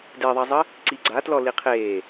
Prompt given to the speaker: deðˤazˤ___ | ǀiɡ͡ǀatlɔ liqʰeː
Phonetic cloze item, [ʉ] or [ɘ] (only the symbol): ɘ